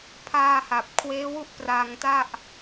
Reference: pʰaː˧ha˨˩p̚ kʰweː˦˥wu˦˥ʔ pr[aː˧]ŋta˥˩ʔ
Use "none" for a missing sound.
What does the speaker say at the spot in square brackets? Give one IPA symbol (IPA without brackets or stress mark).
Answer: aː˧